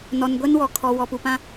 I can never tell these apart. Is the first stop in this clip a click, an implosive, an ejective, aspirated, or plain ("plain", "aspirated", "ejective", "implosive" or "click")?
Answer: plain